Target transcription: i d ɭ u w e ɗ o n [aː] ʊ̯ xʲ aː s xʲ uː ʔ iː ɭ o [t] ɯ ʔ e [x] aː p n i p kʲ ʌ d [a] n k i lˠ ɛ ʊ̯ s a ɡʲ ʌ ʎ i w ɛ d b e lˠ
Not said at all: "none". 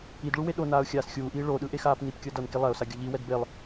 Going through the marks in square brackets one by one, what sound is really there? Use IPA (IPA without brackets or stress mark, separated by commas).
aː, ɗ, x, ʌ